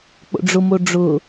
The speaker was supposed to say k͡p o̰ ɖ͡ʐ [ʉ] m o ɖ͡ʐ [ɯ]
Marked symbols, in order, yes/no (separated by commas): no, no